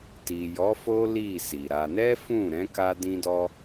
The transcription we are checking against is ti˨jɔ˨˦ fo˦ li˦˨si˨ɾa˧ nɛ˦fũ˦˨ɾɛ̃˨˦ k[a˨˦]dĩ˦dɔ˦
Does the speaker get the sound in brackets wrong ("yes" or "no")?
yes